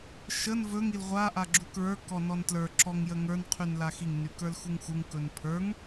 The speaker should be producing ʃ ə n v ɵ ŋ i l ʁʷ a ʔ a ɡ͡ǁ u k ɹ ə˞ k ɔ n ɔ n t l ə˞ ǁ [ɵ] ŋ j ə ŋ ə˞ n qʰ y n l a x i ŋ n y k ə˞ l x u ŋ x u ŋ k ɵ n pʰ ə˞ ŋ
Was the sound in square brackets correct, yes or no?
no